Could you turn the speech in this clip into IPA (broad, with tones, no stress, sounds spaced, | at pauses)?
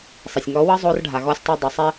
sˤ e˨ sʲ ŋ ɔ˨˦ w ɤ˦ zˤ o˧ r ɖʱ a˨ ɣ ɔ˧ sʲ tˤ e˧ dˤ i˨ sˤ ɛ˦